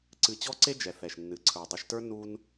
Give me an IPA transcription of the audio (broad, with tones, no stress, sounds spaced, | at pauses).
ǀ ɨ˧ t͡ɕ ɔ˦ ǀ e˦ d͡ʒ ɛ˨ θ ɛ˨ ʃ nː ɨ˨ ǀʰ ə˞˨ dˤ e˧ ʃ t ə˞˦ n u˧ n